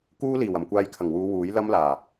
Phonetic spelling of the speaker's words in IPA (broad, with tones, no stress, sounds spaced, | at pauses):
k uː˥ l iː˨˩ w ɐ˨˩ m kʷ aː˧ j kʰ ɐ˨˩ ŋ w uː˨˧ w uː˨˥ j l ɐ˥ m l aː˨˩